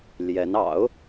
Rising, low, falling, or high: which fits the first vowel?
rising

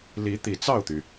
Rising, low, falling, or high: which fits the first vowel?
rising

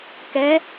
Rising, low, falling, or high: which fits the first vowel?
rising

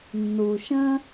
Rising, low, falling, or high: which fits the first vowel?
low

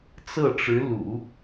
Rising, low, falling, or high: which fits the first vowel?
falling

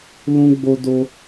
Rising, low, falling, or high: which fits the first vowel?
high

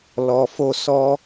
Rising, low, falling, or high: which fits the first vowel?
low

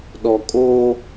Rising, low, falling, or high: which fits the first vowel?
low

